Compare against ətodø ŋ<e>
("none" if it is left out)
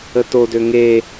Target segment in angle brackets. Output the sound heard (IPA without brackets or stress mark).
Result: e